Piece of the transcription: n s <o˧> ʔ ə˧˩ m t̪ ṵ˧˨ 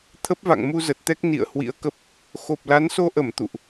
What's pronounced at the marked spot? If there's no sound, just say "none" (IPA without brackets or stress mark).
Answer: o˧